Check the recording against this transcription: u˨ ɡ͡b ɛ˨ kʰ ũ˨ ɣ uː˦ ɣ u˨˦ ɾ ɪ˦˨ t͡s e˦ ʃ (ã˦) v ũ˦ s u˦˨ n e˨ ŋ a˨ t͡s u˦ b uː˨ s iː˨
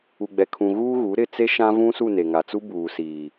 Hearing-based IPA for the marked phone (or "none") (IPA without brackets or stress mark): ã˦